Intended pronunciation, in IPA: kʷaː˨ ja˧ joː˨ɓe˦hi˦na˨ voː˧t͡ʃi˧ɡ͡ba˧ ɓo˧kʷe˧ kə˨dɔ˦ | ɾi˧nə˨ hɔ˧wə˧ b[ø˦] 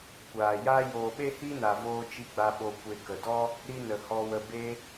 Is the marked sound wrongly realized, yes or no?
yes